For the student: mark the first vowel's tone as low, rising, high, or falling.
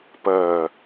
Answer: low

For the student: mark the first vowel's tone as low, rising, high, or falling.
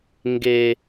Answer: high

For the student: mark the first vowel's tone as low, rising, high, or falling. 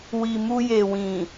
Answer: low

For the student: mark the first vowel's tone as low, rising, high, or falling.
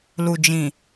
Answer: low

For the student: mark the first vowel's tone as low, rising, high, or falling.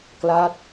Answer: falling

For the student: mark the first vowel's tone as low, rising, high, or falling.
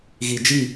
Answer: low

